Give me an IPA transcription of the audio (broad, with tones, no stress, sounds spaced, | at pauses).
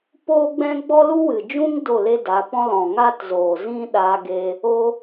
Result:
p oː˦ ɡ͡b ɛ̃˦ ɡ͡b ɔ˦ l u˦ w ɨ˨ d͡ʒ ũ˦ ŋ d o˦˨ l e˦ d a˨˦ p ɔ̃˦ l ɔ̃˨ ŋ a˦ t z oː˨ z ĩ˦ ɗ a˧ ɡ e˧ | o˦